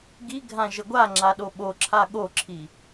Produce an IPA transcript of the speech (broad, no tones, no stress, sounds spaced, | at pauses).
ɡ i ɡʱ ã ʒ ə ɡʷ a ŋ͡ǁ a ɗ o ɓ o ǁʰ a ɠ o ǁʰ i